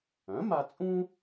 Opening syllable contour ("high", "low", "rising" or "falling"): rising